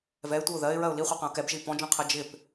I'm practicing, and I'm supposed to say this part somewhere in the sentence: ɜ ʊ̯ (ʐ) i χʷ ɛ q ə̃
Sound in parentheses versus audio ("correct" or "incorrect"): incorrect